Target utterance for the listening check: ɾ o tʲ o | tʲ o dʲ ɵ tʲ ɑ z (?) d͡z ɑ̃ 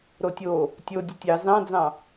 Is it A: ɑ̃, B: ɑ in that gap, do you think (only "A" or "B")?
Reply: A